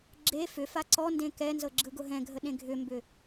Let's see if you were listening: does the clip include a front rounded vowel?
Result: yes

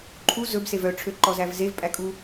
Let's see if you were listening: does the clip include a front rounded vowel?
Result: yes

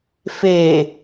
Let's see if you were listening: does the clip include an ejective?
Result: no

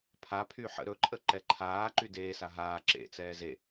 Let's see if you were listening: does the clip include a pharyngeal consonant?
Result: yes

